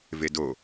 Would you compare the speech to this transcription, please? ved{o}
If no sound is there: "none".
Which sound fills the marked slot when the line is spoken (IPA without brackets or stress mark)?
o